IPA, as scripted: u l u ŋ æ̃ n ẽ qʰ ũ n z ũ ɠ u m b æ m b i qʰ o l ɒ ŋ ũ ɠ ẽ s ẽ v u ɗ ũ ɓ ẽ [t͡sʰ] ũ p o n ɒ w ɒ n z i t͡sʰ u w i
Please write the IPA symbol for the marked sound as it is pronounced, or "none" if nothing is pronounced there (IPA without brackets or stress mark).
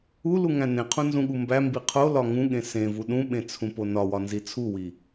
t͡sʰ